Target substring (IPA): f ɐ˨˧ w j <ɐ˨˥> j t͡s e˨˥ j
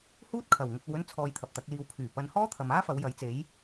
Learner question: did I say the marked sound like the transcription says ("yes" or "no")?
yes